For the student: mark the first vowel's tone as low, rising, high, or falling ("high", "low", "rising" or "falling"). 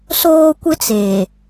high